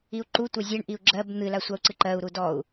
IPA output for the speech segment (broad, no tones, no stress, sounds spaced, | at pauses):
i u̯ ǃ u tʷ ɜ zʲ ɜ ɳ ʔ i u̯ ɡ͡ǁ ɜ b n̪ ɨ l a sʷ a u̯ ǀ ɨ ǃ ɜ u̯ ɾ u d ɔ u̯